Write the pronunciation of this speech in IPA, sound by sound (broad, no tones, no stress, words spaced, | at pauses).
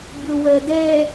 bʲowɜdɛ